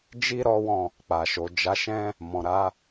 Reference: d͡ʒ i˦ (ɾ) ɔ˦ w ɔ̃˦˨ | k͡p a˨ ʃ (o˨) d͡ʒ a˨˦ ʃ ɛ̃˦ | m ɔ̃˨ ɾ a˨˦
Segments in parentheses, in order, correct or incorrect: correct, correct

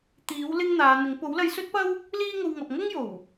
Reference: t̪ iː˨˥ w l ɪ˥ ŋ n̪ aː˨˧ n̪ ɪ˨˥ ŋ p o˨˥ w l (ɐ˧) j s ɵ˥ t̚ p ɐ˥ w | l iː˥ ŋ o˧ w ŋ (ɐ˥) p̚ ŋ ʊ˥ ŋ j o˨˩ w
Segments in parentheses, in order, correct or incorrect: correct, incorrect: ɐ˨

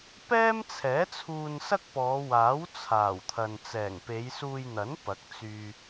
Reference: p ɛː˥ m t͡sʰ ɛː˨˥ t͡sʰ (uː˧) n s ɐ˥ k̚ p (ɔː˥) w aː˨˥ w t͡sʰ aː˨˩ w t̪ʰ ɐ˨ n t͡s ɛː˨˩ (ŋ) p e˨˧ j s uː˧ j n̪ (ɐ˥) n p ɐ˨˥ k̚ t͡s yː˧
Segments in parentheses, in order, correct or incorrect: correct, incorrect: ɔː˨˧, correct, incorrect: ɐ˨˥

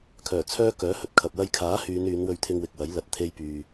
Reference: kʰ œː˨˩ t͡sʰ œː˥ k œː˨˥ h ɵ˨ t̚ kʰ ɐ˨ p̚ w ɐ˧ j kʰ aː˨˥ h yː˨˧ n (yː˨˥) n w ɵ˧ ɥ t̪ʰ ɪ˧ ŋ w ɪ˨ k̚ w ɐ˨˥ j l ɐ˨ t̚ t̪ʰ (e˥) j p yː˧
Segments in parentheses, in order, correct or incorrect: incorrect: yː˨˧, correct

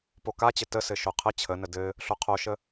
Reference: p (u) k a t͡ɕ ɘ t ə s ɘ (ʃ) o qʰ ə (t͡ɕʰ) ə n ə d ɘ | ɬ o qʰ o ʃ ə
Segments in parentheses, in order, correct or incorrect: incorrect: o, correct, correct

